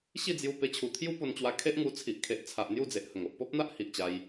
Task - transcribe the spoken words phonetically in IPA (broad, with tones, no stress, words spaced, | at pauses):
ɕi˥˧d͡zju˧ pe˧t͡ɕʰu˨˩t̪ʰju˦ po˧nt͡ɕwa˧ kʰe˦ʔŋu˧t͡sʰi˨ʔ kʰe˨ʔt͡sʰa˨ʔ n̪ju˥˧d͡ze˨ʔhə˨˩ŋ o˨ʔpɔ˦p̚n̪a˦ʔ hi˨ʔt͡ɕa˧j